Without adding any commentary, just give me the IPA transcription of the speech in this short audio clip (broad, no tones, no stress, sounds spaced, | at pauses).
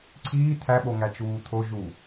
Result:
ǀʰ iː t̪ʰ æ ɓ o ŋ æ t͡ʃ uː t̪ʰ o ʒ u